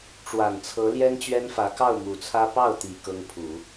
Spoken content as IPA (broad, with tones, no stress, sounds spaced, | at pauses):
ʈ͡ʂ w a˨˩ n t͡sʰ ɤ˧˥ l j ɛ˥ n t͡ɕ ɥ ɛ˥ n f ä˧˥ k ɑ˥˩ ʊ̯ m u˨˩ t͡sʰ ä˥ p ɑ˥˩ ʊ̯ t̪ i˨˩ k ɤ˥ ŋ pʰ u˨˩˦